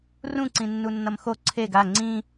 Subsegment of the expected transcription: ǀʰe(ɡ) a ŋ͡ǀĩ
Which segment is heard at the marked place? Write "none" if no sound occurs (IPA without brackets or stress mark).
ɡ